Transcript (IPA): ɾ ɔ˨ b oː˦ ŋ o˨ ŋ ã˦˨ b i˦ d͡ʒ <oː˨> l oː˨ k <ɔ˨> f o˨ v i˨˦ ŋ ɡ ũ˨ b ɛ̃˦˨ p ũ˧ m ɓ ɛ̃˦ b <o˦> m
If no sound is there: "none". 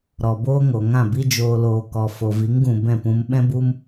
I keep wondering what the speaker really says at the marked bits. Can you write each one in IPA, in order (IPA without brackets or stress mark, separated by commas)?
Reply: oː˨, ɔ˨, u˦